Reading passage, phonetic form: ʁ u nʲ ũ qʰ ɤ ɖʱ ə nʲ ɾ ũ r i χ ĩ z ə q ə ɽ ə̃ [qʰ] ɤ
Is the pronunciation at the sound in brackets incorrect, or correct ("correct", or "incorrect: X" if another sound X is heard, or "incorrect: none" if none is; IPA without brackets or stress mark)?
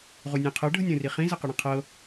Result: correct